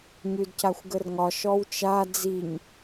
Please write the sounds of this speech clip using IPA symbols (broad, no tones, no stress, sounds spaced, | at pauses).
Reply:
ɲ ʉ d c a xʷ ɡ ə r ŋ ɒ ʃ ɔ w t͡ʃ a d͡z i ɲ